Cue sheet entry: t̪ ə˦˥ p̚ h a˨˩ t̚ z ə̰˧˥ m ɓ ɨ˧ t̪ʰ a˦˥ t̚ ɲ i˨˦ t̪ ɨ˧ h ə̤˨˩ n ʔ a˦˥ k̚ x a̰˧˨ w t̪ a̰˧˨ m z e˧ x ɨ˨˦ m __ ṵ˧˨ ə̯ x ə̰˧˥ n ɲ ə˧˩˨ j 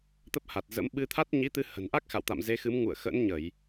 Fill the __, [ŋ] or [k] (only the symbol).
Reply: ŋ